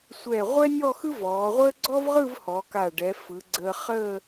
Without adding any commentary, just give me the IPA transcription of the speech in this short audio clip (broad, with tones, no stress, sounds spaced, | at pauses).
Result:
sʷ ɛ˧˩ ʁʷ ɛ˥ nʲ ɔ˥˧ x ɯ˥ v ɔː˩˧ ʁʷ əː˥ ɡ͡ǀ ɔ˥ v ʁ ɯ˥˧ v h ɔ˩˧ k a˧˩ ɖ ɛ˩˧ f ɯ˩˧ ɡ͡ǀ əː˧ χ əː˥˧